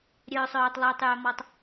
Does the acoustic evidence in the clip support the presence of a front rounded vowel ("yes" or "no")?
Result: yes